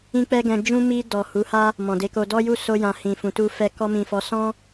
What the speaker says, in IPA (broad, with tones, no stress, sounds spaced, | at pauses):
ĩ˦ k͡p ɛ˦ ɡ ɛ̃˧ d͡ʒ ũ˦ m i˧ d ɔ˨ h u˨˦ h a˦ | m ɔ̃˨ d e˧ k o˧ d ɔ˦ j u˦˨ s o˧ j ã˨ h ĩ˨ f ũ˨ t u˧ f ɛ˧ k ɔ˧ m ĩ˨ f ɔ˨˦ s ɔ̃˦